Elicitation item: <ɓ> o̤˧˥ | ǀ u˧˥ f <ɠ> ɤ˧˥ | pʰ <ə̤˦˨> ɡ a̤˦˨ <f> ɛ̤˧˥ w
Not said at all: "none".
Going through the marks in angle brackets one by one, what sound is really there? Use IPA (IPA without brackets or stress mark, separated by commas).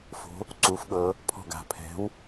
f, ɠ, ɔ̤˦˨, pʰ